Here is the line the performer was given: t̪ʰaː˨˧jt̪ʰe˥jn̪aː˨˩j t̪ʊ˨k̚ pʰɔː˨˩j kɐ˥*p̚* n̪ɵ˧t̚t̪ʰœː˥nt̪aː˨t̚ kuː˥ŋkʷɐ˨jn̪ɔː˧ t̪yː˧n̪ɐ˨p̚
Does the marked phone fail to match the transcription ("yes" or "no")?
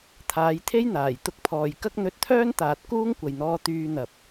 yes